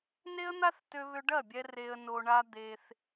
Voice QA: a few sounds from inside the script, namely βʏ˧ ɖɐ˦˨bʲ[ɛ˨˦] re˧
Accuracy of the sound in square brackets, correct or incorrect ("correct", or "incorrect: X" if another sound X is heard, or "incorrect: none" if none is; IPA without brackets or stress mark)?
incorrect: ɛ˧